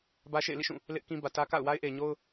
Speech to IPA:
bä˦ʃḛ˦˨ɪ̯lḭ˦˨ʃũ˦˨ | lɪ˦ʔkĩ˦ bä˨tä˦ka̰˦˨ʊ̯ wa˦ɪ̯ʔe˨ɪ̯ɲo˦ʊ̯

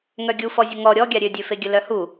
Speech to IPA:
ŋœɡʲufɔ zʲəŋɔ ɾʲɔɡʲa ɾʲødʲøfeɡʲə lœhu

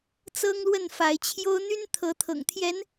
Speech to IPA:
t͡sɤ˦ŋlwə˥˨nfa˨˦ɪ̯ t͡ɕʰjo˦ʊ̯ n̪y˦nt̪ʰɤ˨˦t̪ʰɤ̰˨˩ŋt̪ʰjɛ˨˦n

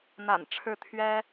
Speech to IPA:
n̪a̰˨˩n ʈ͡ʂʰɻ̩˥˩t̪ʰɥɛ˥

